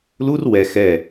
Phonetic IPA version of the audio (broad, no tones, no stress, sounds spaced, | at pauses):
l u r w ɛ x ɛ